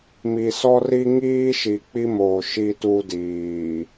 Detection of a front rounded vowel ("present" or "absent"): absent